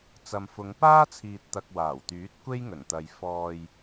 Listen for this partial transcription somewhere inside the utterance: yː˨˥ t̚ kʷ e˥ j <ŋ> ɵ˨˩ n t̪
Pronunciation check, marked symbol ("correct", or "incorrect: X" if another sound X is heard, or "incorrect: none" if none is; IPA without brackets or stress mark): correct